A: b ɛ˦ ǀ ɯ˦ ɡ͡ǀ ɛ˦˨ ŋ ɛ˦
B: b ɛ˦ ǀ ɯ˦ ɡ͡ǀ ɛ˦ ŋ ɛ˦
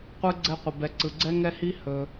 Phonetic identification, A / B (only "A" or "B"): B